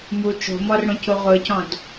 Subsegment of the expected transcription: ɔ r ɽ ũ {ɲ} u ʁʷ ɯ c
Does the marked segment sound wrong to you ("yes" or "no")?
yes